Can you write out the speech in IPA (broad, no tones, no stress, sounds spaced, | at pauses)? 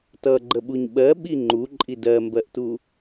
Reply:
t ʌ ɡ͡ǃ ə ɓ u ɲ ɓ ɜ ɓ i ŋ͡ǃ u ǃʼ i d ɜ m b ɜ ʔ t u